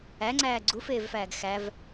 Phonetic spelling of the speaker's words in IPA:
æ ŋ͡ǀ æː ɡ͡ǀ u f eː v f æː ɡ x æ v

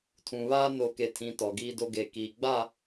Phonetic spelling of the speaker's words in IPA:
tʰ ũ˨ β aː˦ n o˨ k e˨ tʰ ĩ˨ t ɔ˨ ɡ iː˦ d o˦ ɡ e˨ k iː˨ ɡ͡b a˦˨

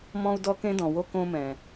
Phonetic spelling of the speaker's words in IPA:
m ɔ̃˧ u̯ d ɔ˧ k ẽ˧ d ɔ̃˩ w o˧ k õ˧ m ɛ̃˩

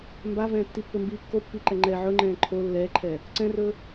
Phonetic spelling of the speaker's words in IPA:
m b a v ɛ̃ː tː i pː ɵ m b iː kː o pː i ǃ ɛ ŋ͡ǃ ɛ ʕ ɵ ŋ͡ǃ ɛ̃ː ǃʰ oː lː ɛː ǃʰ ɛː | ǀ ɛ̃ r ɵː

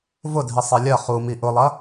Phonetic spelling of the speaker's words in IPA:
v ʊ dʱ i sˤ e lʲ ɐ χ u m i ʔ ʊ lˠ ɐ

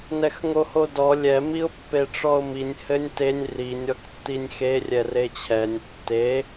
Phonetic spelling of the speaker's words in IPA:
n ɛ x ŋ o h o d ɔ lʲ ɛ m i ʊ̯ pː e ʈ͡ʂ ɔ ʊ̯ m i nʲ h ɘ nʲ t e nʲ r i nʲ ɔ k tː i nʲ x e rʲ ɛ r e t͡ɕʰ ɛ nʲ tː e

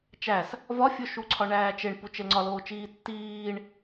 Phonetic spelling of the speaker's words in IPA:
t͡ʃ æ s | v ɒ fʲ o ʃ u ǀʰ ɒ ɳ æː t͡ʃ e ɳ p u t͡ʃ e l ŋ͡ǀ ɒ l oː t͡ʃ iː tː iː ɳ

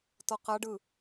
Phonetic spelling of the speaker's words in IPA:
t ɔ q a ɖ ɯ

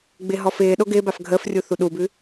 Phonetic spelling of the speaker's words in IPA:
ɡ͡b ɪː ɦ ɔ f ɪː ɗ o ɡ ɪː b a f ɡʱ əː f rʲ u θ u ɗ u b ʉ

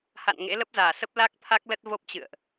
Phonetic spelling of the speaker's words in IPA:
h a̰˧˨ n ŋ ḛ˧˥ l ə˦˥ p̚ z aː˧˩ s ə˦˥ p̚ l a˦˥ k̚ t̪ʰ a˦˥ k̚ l ə˦˥ t̚ v o˦˥ p̚ t͡ɕ ɨ̰˧˨ ə̯ ʔ

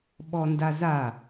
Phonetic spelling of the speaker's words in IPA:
ɓ ɔ n d a z a

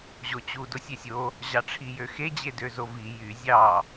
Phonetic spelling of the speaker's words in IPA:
ʑ o t͡ɕ u d o sʲ e sʲ o | ʑ ɑ ʈ͡ʂʰ i j ø x e d͡ʑ e d ø z o v i j y zʲ ɑ

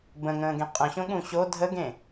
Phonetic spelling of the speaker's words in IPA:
b ə̃ ŋ ə̃ː ɡ ẽ qʼ ə̃ ɕ õ ɠ ũ ɕ o dʱ ə ɡ ẽ

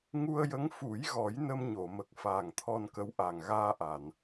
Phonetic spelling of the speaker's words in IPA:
ŋ u˧ ə̯ j ə˧˥ ŋ f u˨˩˦ j ɣ ɔ˨˩˦ j n ə˧ m ɲ o˨˩˨ m ə˨˩ k̚ f aː˨˩ ŋ t̪ʰ ɔ˧ n k ə˧˥ w ʔ a˨˩ ŋ ɣ aː˧ ʔ a˨˩˨ n

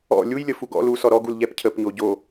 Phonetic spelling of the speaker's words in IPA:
ɔ̰ lʲ u j lʲ ə f u ɡ ɔ̰ l u s ɔ ɾ ɔ ɡ u l ʎ ɛ p cʰ ə p ɲ o ɟ o

